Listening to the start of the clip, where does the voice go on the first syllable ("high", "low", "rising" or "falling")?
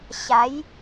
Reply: rising